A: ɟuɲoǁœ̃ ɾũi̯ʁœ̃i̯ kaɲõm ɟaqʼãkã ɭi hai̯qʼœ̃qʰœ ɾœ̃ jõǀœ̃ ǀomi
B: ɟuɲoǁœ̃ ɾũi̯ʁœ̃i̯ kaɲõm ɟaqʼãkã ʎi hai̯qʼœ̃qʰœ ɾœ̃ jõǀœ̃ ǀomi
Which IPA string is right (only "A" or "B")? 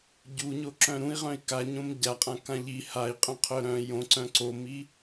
B